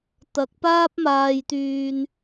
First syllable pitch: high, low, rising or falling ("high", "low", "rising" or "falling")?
low